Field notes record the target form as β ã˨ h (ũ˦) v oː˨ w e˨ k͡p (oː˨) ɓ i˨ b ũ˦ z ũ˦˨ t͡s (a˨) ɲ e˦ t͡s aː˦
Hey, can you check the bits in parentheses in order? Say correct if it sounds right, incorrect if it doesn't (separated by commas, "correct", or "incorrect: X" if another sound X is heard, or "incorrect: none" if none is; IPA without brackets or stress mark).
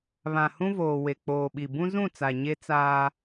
correct, correct, correct